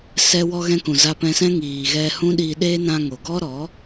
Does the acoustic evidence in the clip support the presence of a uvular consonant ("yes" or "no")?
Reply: no